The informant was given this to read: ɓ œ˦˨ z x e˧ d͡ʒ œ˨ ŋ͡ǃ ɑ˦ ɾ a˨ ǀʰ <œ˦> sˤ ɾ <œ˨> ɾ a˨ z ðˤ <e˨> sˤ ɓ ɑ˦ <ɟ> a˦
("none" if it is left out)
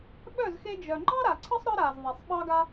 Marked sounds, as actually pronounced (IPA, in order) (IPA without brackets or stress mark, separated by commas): ə˦, œ˦, e˨, ɡ